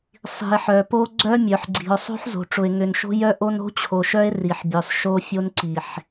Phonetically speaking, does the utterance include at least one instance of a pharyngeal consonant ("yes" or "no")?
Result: yes